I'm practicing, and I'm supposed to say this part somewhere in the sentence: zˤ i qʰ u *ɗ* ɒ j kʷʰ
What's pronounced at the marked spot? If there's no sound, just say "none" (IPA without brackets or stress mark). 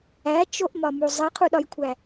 ɗ